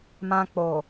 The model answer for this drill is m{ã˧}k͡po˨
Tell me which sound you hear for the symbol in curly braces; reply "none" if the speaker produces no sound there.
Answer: ã˧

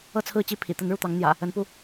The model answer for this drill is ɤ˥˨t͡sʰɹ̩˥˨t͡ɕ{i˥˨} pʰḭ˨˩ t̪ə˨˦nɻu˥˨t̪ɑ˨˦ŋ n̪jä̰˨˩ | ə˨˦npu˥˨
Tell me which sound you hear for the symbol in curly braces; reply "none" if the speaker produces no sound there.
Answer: i˥˨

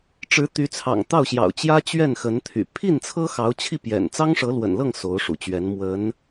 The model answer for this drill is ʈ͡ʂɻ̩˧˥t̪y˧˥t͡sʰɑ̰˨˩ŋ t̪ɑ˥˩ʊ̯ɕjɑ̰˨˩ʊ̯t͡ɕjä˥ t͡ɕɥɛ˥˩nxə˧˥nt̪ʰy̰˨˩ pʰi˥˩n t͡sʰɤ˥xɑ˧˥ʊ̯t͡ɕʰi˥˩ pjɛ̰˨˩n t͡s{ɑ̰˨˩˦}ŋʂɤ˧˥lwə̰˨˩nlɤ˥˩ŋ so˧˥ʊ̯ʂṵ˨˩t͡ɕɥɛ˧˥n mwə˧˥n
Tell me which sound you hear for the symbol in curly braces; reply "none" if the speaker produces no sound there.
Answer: ɑ˥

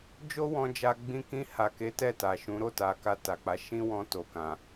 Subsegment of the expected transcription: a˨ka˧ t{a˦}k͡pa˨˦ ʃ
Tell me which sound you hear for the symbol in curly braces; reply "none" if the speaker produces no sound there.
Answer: a˨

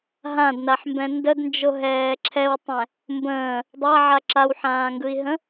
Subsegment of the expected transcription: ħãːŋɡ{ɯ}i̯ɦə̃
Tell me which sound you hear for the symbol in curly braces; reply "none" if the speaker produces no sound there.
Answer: ɯ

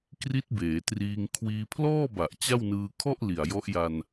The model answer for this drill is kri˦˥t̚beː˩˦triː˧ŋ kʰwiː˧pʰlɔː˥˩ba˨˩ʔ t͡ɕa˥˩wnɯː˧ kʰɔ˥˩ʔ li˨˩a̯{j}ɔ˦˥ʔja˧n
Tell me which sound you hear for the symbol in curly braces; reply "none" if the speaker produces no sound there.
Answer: j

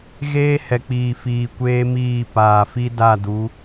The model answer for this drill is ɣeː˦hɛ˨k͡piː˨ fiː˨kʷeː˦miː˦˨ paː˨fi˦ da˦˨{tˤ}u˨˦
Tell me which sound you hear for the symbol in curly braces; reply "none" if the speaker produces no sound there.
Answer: d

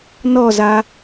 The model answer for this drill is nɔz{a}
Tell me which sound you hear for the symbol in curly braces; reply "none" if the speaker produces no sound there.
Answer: a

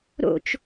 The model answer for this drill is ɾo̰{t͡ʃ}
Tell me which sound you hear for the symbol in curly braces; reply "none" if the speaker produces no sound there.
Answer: t͡ʃ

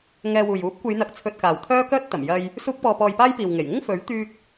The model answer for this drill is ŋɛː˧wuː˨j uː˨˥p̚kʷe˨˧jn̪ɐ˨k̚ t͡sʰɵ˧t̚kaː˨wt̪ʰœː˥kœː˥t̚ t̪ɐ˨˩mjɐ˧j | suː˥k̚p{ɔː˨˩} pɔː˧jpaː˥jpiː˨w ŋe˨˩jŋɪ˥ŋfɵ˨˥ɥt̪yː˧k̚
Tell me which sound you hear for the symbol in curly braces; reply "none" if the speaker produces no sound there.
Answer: ɔː˧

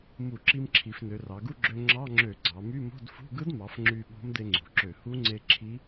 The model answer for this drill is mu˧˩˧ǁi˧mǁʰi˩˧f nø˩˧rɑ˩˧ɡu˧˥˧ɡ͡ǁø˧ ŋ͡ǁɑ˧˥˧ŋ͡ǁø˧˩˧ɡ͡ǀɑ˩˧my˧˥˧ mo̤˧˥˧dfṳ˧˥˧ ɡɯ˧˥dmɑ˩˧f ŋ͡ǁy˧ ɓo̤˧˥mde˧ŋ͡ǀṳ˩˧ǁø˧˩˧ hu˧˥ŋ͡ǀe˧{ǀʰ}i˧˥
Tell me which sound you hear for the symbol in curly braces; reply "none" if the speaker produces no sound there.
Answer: ǁʰ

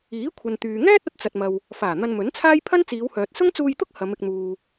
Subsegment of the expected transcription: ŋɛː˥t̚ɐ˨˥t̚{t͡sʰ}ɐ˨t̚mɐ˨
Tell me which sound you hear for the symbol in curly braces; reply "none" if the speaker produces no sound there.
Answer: t͡s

